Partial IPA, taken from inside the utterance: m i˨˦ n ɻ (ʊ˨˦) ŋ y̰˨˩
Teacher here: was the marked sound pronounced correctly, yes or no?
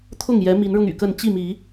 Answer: no